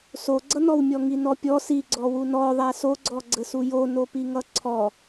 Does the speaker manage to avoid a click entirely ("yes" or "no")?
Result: no